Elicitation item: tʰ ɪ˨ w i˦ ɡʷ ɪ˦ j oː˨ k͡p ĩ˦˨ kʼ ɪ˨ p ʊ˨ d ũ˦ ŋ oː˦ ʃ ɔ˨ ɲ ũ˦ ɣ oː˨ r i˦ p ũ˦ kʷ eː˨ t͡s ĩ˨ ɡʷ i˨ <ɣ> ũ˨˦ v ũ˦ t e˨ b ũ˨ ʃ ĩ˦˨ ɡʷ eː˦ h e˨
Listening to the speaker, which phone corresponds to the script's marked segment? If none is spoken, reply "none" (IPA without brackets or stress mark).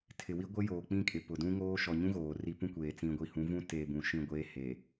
h